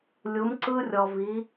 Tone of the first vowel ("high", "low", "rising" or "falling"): rising